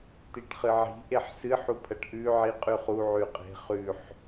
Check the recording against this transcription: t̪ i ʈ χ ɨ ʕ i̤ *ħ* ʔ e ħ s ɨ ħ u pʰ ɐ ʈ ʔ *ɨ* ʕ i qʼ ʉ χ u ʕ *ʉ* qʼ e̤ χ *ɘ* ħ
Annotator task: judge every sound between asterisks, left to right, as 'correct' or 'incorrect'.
incorrect: none, incorrect: ʉ, correct, incorrect: ʉ

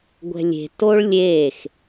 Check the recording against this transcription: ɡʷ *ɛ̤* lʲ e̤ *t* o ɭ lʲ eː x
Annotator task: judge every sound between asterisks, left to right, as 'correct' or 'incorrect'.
correct, correct

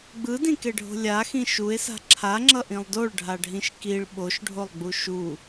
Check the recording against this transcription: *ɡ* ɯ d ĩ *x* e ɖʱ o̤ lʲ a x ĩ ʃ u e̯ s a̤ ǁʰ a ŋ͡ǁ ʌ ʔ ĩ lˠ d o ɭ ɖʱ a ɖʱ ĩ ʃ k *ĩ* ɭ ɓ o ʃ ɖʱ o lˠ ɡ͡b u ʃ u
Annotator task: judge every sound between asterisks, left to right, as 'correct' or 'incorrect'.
incorrect: ɡ͡b, incorrect: k, incorrect: i

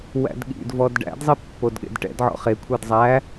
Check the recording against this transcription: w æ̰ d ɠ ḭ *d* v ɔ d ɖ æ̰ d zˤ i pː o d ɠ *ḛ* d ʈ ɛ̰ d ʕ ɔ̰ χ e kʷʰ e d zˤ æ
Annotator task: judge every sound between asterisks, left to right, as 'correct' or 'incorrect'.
correct, correct

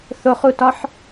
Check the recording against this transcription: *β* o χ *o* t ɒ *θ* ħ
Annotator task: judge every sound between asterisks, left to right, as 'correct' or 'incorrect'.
incorrect: θ, incorrect: u, incorrect: none

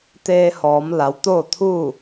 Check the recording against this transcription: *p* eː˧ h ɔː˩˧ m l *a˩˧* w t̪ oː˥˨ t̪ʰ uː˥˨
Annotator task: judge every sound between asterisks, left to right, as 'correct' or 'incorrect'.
incorrect: t̪, correct

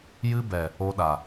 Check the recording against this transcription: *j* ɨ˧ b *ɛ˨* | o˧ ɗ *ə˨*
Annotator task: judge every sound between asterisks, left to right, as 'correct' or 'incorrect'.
correct, correct, incorrect: a˨

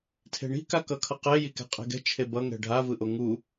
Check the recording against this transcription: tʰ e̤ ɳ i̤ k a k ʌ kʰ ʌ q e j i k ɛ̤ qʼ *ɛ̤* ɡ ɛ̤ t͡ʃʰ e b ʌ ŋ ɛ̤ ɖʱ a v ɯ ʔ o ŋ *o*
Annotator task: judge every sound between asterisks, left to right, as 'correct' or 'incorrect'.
incorrect: e̤, incorrect: u

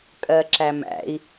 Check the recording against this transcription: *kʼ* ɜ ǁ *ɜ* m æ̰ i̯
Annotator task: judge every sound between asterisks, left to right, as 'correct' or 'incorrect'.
correct, incorrect: æ

